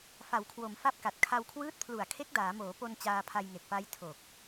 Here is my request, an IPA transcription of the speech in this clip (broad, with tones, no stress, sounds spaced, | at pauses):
f a˩˦ w kʰ w o˩˦ m f a˦˥ p̚ k a˨˩ t̚ kʰ a˧ w kʰ w ɯː˦˥ t̚ pʰ l u˨˩ a̯ kʰ e˦˥ k̚ d aː˩˦ m oː˩˦ p o˧ n t͡ɕ aː˧ pʰ a˧ j ŋ e˨˩ k̚ p a˦˥ j tʰ o˨˩ k̚